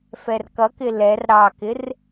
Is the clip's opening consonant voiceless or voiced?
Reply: voiceless